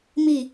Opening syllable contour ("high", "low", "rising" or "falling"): falling